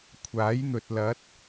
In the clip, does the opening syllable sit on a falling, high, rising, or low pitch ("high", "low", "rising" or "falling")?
rising